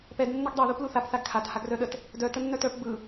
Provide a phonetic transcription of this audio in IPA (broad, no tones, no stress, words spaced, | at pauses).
pɛd nːəɡdˤɛ ðupluθap θaɡkʰat haɡrœɗət | dœ tənːœtœp bɯ